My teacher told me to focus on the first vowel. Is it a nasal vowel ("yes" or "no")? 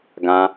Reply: yes